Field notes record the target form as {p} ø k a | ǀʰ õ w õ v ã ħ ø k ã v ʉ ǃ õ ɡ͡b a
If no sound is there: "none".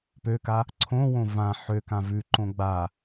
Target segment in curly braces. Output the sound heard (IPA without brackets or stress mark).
p